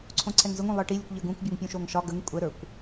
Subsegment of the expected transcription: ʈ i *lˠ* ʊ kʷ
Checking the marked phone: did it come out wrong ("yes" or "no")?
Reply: yes